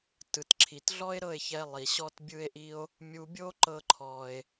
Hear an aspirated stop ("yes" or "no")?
yes